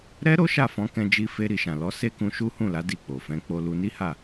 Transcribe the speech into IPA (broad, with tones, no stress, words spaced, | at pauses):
ɾɛ˦ɾo˦ ʃa˦˨fɔ̃˨˦kɛ̃˧d͡ʒi˧ fe˧ɾi˨ʃã˨ lɔ˨˦se˦kũ˧ ʃu˦hũ˦˨la˨˦ di˦˨k͡po˨fɛ̃˨˦ k͡po˧lu˧ni˦ha˦˨